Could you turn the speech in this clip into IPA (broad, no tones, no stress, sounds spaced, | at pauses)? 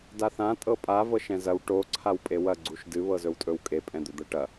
d a θ ã tʼ ɤ pʼ a v ɤ ʃ ɛ̃ z ɐ w ʈ o ǀʰ a w pʼ e w ɐ ɡ͡ǀ u ʃ d ɨ β ɤ z ɵ w tʼ ɵ w kʼ e pʼ ɛ̃ d̪ ɵ d̪ ɤ ʈ ɐ